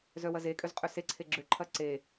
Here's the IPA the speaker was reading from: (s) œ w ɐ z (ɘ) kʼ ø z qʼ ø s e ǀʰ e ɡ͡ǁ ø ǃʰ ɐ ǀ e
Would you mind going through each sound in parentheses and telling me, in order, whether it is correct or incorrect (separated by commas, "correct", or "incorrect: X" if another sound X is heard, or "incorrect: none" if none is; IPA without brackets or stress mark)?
incorrect: z, incorrect: e